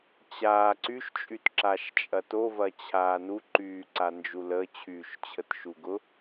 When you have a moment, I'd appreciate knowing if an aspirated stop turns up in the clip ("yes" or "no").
yes